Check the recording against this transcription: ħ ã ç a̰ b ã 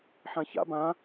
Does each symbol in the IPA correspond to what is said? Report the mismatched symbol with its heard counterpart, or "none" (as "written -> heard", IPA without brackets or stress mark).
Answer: none